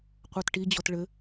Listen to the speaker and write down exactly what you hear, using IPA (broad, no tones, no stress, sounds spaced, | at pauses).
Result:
qʷ ɑ t ʈ i d͡ʑ ɔ t ɭ ɘ